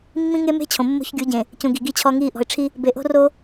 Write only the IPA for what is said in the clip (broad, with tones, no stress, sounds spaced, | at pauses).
mː ĩ˦ ŋ e˦ m e̤˦ t͡ɕʰ õ˨ mː o̤˦ ç ɡʲ u˨˦ ɟ ẽ˨ | c ũ˨ ɡ i˨ ɡ i˦ t͡ɕʰ ɔ˦ ŋ iː˦ ʔ ɔ̤˨ ɪ̯ ʈ͡ʂʰ i˦ | b e˨ ʔ o̤˦ r o˦